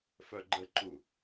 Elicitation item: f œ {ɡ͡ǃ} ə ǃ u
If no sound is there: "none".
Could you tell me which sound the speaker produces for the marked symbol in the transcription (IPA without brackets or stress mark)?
ɡ͡ǃ